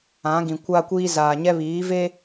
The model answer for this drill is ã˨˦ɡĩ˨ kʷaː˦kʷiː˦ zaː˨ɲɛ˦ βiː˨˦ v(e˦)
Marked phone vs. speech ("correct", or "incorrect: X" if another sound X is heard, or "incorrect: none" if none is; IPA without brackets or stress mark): correct